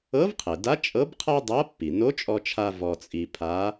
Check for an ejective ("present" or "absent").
present